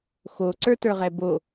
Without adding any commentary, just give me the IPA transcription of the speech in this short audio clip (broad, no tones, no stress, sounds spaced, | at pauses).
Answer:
x o ǀ ə˞ t ə˞ ʁ ɛ b o